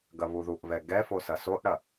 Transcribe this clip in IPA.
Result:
ɡɐβuðuʔβɛ ɡɛfo sɐsoʔɽɐ

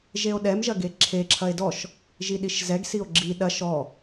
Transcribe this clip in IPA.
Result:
ʒeo̯ɗɛm ʒɐɡeǁʰe ǁʰɐe̯dɔʃ | ʒiɗiʃzɛɡ sio̯ɡ͡ǁi ɗɐʃ ɔ

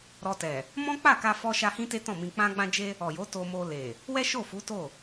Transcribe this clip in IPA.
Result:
ɾɔ˧tɛ˨ | mɔ̃˦k͡pa˦˨ka˧ fɔ˦ʃa˦ hĩ˦te˦tɔ̃˦˨mĩ˧ k͡pã˧ɡ͡bã˧d͡ʒe˧ | ɔ˨jo˨˦ to˧mo˧le˨ | wɛ˦ʃo˦˨fu˨˦ to˦˨

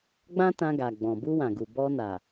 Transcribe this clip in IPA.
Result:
ɡ͡bã˦tã˧ɡa˨ɡ͡bɔ̃˨ bu˧wã˨ɡu˨ bɔ˧ na˨

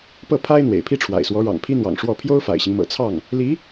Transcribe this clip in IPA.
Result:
pɤ˥˩pʰa˥ɪ̯ n̪wḛ˨˩ɪ̯pʰi˥ʈ͡ʂʰwa̰˨˩ɪ̯swɔ˧˥ ɻɑ̰˨˩ŋpʰi˥n̪wɑ̰˨˩ŋ ʂwɔ˥˩ pʰjo˥ʊ̯ fa̰˨˩ɪ̯ɕi˦ŋ mɤ̰˨˩ t͡sʰɑ˥˩ŋ | li˧˥

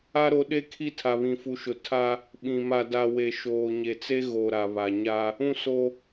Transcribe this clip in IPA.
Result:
a˦ɾo˨˦ɗe˦kʰi˦ tʰa˨βĩ˨fu˨ʃʊ˨ tʰa˦ | ɓĩ˨ ma˨da˨ we˨ʃoː˨ɲe˨t͡se˦ ɣo˨ ɾa˨βa˨ɲa˦ | ũ˦ so˦

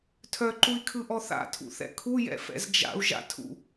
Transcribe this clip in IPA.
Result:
tʰœǃui̯kʰɯʔɔ θa̰tʰṵθɛ̰ kʰujɛ̰fɛ̰z d͡ʒa̰u̯ʒa̰tʰṵ

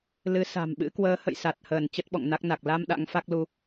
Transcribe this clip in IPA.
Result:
lɨ˨˦sa̤˨˩mɓɨ̰˧˥ kwəː˨˦hə̰˧˨j sa˨˩t̚həː˧˩n t͡ɕə˦˥t̚ɓɔ̰˧˨ŋna˦˥k̚na˨˩k̚ la˧m ɗa̰˧˥ŋfa˦˥k̚lu˧

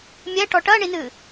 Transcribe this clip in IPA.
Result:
mʲɛʈɔ ʈɐɳinɨ

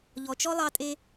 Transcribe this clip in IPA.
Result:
ʎɔ˨t͡ʃɔ˥lˠɑ˦tʼe˦

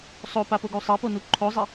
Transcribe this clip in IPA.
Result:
sˤopapoɡu sˤɛponu ǃʰozˤe

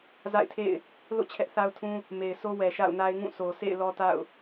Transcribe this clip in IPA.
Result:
za̰˦˨ɪ̯tʰḛ˦˨ɪ̯ | lo̰˦˨ t͡ɕʰɛ˦ʔθa˦ʊ̯tʰũ˦ | me˨ɪ̯so˦ wɛ˨ʃa̰˦˨ʊ̯na˦ɪ̯ ŋũ˦˨sʰo˨sʰḛ˦˨ɪ̯ lɔ˦ta̰˦˨ʊ̯

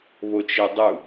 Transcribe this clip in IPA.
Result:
βot͡ʃedˤu

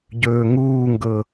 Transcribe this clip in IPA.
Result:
ɟɵːŋuːŋɡɤ

